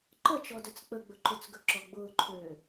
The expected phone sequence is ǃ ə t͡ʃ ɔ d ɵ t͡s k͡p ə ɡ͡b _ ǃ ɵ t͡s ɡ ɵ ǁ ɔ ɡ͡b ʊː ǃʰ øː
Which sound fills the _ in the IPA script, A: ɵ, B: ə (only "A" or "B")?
A